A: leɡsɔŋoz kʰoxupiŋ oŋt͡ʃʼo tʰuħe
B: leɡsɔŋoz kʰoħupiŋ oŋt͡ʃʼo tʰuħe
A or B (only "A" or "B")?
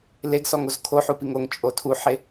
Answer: B